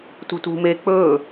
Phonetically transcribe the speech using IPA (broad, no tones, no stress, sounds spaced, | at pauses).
t ṳ t ṳ m e k͡p ɵː